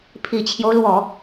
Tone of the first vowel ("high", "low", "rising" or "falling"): low